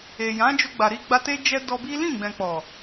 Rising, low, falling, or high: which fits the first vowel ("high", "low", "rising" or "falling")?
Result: low